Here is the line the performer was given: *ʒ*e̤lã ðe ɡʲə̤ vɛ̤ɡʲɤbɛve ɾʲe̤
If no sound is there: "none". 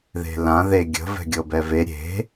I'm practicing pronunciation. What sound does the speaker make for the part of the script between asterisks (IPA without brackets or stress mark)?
ð